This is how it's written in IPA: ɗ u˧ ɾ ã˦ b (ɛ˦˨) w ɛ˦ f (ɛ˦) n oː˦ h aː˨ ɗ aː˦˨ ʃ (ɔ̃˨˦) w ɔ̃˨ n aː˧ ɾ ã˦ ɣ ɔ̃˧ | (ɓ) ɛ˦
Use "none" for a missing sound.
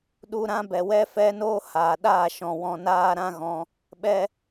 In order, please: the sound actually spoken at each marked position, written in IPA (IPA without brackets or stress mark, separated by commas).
ɛ˨, ɛ˦, ɔ̃˨, ɓ